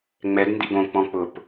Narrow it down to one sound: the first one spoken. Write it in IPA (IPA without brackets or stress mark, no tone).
ŋ͡m